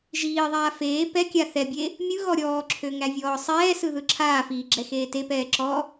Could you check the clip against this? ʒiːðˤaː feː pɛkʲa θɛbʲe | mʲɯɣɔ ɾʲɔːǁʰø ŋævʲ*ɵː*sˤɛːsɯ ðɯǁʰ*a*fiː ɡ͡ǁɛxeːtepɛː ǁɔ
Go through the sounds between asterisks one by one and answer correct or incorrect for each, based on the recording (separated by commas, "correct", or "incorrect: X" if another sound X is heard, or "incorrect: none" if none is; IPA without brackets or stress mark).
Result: incorrect: ɔː, incorrect: aː